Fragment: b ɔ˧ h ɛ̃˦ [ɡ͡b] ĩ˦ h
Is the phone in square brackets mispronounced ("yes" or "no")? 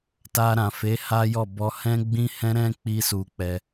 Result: no